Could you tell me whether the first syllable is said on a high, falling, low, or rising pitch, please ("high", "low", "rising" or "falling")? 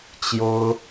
high